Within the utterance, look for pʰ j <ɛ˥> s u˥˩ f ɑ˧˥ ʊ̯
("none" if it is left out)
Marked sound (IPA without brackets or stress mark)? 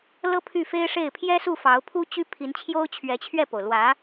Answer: ɛ˥